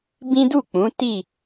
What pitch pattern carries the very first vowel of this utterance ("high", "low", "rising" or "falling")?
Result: high